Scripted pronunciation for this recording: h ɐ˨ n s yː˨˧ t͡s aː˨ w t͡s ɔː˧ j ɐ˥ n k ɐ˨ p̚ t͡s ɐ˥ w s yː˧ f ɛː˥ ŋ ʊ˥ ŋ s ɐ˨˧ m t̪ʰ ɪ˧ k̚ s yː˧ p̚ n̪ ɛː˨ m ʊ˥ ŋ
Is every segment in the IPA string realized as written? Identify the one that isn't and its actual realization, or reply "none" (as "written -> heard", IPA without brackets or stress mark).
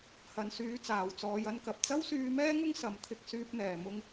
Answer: f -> m